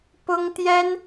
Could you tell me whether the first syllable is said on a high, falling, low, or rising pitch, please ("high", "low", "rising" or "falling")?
high